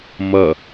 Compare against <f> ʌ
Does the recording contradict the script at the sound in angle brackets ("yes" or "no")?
yes